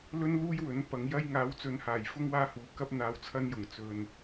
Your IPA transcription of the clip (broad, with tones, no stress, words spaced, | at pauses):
lɵ˥nluː˥j wɵ˨˥npɐ˨˧ŋjɐ˥j ŋaː˨˧wt͡sɵ˨˧nhaː˨˩j fʊ˥ŋ waː˥huː˨ kɐ˥p̚ n̪aː˧wt͡sʰɐ˥njʊ˨˩ŋ t͡sɵ˨n